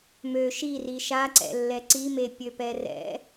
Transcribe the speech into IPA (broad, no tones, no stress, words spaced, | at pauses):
mø ʃiri ʃaǀɛ̰lːɛ ǀimepʲøpɛ rɛ̰